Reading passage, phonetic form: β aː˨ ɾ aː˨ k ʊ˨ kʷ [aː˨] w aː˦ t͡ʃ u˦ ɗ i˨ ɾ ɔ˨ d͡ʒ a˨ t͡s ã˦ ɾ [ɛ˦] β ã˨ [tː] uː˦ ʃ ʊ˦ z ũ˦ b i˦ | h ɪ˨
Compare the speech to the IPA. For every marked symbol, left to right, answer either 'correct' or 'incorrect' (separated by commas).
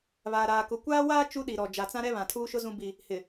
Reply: incorrect, correct, incorrect